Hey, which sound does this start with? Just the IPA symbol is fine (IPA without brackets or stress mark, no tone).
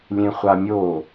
lʲ